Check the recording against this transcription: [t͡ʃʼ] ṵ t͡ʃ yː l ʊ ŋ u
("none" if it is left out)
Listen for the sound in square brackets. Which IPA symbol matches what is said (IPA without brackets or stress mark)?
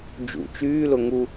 d͡ʒ